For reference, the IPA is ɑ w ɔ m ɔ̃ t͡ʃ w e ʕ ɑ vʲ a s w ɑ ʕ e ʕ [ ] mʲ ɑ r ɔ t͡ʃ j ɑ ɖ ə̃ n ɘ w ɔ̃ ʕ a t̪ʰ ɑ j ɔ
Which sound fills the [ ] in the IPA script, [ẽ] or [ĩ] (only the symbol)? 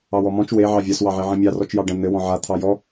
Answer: ĩ